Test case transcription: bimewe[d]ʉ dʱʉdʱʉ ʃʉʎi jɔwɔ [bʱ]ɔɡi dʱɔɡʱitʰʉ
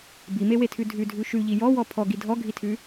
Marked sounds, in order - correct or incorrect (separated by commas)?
incorrect, incorrect